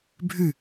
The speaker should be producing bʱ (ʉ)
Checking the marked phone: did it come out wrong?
no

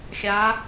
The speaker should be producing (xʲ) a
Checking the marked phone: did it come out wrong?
no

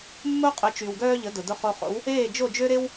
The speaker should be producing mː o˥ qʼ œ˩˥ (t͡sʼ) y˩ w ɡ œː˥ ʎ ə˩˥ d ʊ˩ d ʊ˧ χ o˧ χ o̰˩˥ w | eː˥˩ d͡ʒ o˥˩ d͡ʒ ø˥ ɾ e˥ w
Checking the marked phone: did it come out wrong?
yes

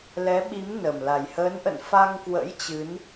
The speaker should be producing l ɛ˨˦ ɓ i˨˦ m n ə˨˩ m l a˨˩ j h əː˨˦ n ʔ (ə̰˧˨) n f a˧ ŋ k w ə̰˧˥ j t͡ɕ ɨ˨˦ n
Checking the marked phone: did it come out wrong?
no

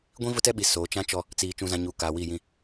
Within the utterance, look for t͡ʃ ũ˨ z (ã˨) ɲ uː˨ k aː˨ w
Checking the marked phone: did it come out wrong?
no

